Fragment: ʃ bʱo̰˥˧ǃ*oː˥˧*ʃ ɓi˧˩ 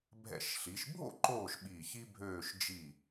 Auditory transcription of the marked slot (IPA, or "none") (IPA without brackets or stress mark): oː˧˩